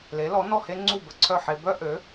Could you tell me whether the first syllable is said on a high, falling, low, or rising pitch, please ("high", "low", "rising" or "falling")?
rising